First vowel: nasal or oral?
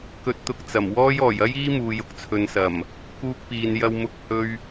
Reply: oral